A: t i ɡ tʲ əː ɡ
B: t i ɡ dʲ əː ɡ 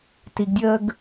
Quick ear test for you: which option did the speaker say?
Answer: B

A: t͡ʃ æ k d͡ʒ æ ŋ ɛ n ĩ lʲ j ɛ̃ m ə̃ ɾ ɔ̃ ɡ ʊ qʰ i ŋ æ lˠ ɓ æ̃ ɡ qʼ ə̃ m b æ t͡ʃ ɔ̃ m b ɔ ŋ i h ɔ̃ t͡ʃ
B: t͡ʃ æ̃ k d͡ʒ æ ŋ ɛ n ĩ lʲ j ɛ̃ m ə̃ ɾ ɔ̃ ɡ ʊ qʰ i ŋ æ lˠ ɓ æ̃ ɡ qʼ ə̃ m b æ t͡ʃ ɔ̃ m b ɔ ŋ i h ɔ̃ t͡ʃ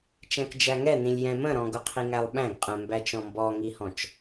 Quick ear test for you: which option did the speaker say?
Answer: B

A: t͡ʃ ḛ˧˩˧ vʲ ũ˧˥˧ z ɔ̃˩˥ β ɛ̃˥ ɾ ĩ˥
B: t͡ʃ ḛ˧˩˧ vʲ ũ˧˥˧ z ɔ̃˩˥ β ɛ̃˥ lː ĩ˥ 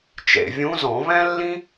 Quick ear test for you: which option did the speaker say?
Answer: B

